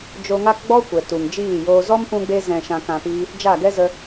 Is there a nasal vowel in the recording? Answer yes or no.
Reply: yes